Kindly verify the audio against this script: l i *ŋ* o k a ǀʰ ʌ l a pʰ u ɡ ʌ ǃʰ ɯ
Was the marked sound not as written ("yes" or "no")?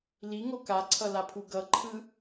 no